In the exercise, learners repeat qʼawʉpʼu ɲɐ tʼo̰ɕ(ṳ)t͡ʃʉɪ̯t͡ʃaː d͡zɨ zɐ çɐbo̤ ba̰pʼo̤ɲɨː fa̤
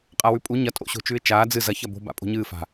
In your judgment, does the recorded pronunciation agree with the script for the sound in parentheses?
no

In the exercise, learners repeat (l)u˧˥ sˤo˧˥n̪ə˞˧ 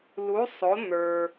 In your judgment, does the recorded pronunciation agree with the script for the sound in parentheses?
yes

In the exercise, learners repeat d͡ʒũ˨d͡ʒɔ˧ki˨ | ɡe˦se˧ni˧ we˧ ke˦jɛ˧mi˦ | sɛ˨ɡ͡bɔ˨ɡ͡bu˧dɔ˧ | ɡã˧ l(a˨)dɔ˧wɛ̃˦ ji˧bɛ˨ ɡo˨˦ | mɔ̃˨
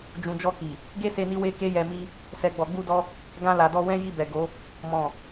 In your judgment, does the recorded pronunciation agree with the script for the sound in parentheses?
yes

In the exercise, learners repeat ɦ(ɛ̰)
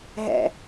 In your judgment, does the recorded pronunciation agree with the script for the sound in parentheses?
yes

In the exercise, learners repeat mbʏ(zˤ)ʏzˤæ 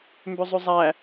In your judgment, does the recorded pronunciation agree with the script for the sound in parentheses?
yes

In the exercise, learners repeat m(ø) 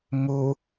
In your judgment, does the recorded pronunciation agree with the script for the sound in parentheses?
no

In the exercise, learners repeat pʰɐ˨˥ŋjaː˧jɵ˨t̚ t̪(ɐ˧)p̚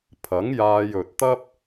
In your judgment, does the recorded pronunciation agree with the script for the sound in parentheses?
no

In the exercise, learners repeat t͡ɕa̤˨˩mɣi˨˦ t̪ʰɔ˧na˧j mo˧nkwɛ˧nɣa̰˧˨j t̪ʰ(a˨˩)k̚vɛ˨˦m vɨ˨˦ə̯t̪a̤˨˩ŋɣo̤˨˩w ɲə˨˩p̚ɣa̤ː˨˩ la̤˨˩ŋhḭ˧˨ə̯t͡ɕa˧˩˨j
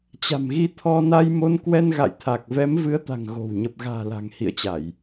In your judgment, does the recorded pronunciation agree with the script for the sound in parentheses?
yes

